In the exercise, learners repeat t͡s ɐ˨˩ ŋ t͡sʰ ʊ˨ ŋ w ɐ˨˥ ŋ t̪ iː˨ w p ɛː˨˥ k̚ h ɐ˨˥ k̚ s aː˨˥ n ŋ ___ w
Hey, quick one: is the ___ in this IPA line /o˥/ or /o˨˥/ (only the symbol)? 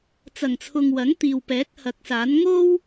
o˥